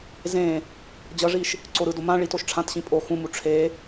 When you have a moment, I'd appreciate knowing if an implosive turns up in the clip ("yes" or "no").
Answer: no